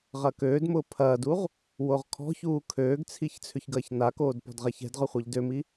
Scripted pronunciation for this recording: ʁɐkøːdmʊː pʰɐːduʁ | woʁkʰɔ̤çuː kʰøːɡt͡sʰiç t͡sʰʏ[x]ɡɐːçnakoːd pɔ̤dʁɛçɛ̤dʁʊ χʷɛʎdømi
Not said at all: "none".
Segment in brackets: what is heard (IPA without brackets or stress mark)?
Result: ç